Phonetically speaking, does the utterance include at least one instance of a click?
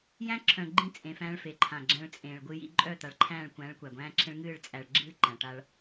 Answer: yes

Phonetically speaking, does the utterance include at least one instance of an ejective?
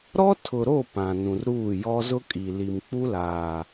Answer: yes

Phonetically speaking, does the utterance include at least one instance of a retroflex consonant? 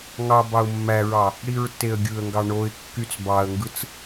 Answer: yes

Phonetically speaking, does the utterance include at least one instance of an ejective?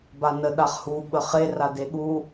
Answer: no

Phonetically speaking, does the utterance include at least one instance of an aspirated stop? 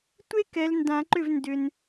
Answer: no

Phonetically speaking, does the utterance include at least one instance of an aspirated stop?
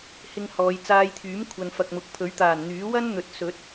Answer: yes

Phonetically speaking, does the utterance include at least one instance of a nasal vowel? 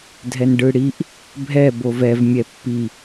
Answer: no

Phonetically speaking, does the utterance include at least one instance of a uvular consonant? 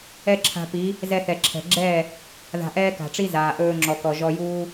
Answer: no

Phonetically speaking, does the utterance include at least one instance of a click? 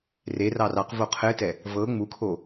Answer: no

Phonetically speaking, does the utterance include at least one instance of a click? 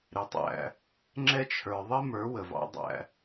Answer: yes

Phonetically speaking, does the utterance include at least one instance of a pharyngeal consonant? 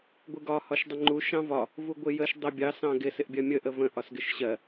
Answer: no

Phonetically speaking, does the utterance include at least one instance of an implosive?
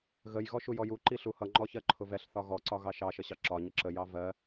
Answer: no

